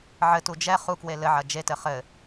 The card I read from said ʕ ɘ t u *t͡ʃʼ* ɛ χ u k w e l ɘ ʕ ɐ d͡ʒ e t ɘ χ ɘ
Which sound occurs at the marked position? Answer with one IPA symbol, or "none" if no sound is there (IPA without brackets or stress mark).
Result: d͡ʒ